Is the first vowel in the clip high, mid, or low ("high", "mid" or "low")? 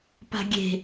low